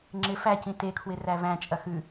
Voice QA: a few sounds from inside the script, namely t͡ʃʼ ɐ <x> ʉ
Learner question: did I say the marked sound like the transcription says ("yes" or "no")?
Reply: yes